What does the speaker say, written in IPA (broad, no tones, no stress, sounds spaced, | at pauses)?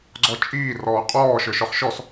ɡ͡ǀ ɔ t͡ʃʼ iː r ɔː qʼ ɔː ʃ ə˞ ʃ ɔ χ ʃ ɔ s